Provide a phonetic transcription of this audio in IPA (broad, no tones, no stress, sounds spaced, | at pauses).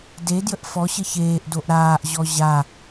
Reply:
d e d j ə ʔ f ɔ ɕ ə ç eː ʔ d o ʔ ɾ aː ʔ ʑ ɔ ʑ a